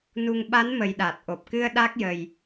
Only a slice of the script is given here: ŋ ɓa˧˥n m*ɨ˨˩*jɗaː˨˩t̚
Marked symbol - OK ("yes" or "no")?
no